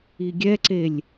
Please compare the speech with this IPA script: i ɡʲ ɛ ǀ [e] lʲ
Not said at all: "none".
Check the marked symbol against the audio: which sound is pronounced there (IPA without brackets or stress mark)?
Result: e